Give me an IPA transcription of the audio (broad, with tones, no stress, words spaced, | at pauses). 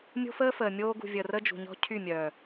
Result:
mʲo̤˦fəː˦fəː˨mʲoː˦ ɡṳ˨vʲəː˨r ə˦ d͡ʒṳ˨ɲɔ̤˦ cʰy˦˨mʲœː˨